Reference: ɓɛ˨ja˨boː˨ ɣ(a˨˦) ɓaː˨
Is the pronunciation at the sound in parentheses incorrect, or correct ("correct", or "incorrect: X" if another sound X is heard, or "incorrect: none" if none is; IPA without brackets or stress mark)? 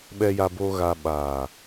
incorrect: a˨